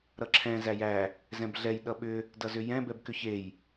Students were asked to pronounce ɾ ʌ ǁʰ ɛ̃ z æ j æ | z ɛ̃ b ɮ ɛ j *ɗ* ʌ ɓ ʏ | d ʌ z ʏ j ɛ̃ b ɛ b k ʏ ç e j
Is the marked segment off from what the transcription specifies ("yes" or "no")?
no